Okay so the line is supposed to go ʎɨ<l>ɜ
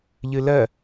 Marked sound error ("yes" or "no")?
no